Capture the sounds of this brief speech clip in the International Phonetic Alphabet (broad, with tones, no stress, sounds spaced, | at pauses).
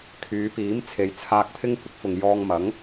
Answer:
kʰ yː˨˧ p iː˨˥ m t͡sʰ e˨˧ j t͡sʰ aː˧ k̚ pʰ ɪ˥ ŋ kʷ ɪ˨˥ k̚ f ʊ˨ ŋ j ɔː˧ ŋ m ɐ˨˥ ŋ